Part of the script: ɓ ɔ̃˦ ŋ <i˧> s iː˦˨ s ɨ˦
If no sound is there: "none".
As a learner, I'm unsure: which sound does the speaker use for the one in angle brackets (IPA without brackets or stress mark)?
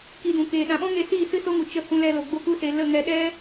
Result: e˧